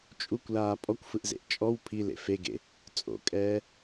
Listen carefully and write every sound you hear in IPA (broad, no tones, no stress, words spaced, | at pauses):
t͡ʃʼukʷlaː pʼɔkʷfɯʔzḛʔ t͡ʃʼɔw pʰilḛ feɡḛ | t͡sʼo̰kʼɛː